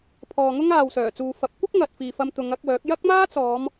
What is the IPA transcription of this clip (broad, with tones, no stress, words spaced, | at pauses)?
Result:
pʰɔː˨ŋʊ˥ŋaː˨w sœː˨˩t͡suː˨fɐ˨˥p̚ kʷɪ˥k̚ ŋɐ˨t̚fiː˨fɐ˧m t̪ʊ˨˧ŋɐ˨˥k̚wœː˨˥k̚ jɐ˥k̚maː˥t͡sɔː˨˧m